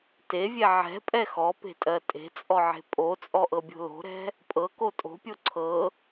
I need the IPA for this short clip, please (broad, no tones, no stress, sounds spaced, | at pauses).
t e vʲ ɛ ʕ ɛ̤ pʼ ɛ x ɔ p e̤ tʼ ɜ tʼ e̤ t͡sʼ ɔ ʕ e̤ pʼ o t͡sʼ ɔ ʔ ɤ bʲ o̤ l o̤ ɾ ɛ̤ | pʼ ɤ k o tʼ o̤ pʲ o ǀʰ ɤ